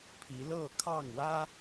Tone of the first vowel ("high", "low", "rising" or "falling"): rising